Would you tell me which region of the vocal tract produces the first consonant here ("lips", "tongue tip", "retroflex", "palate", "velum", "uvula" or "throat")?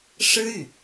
retroflex